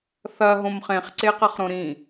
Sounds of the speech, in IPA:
θɐ ɦõmχẽχ ǀeqɐχɾõɾĩ

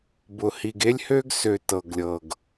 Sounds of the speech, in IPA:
bʊ˨hi˨ɡ e˦lʲhø˦ɡsø˨ tɤ˨ɡlʲɤ˨ɡ

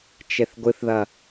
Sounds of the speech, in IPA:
t͡ʃeθɡʷɨθðɐ

